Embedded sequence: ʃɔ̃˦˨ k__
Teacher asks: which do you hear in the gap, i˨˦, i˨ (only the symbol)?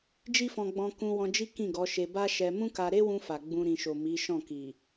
i˨